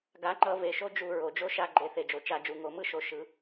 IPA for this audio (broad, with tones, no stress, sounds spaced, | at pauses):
ɡ a˩˥ ŋ͡ǃ ʌ˧˩˧ v e˩˧˩ ʃ o˦ d͡ʒ u˧˩˧ ɹ o˩ d͡ʒ o˦ ʃ a˦˨ ɡ͡ǃ e˩˥ θ e˩ d͡ʒ o˩ t͡ʃ a˧˩˧ d͡ʒ u˩˧˩ ŋ o˧˩˧ m ɯ˦ ʃ o˩˥ ʃ ɯ˩˥